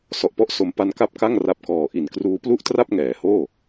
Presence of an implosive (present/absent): absent